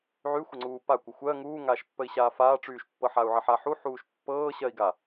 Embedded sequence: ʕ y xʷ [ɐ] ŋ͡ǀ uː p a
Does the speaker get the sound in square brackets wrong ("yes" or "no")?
yes